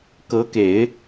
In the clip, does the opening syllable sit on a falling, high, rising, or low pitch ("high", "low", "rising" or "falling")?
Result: rising